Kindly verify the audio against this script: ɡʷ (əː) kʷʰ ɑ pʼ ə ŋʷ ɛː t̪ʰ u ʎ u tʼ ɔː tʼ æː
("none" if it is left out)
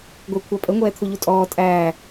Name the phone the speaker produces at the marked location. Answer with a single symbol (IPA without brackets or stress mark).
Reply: ɪː